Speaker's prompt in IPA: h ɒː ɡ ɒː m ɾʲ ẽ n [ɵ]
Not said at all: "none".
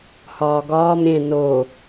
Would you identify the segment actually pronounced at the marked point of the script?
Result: o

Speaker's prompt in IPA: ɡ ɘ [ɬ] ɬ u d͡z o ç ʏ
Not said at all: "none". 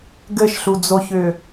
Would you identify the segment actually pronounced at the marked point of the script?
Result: ʃ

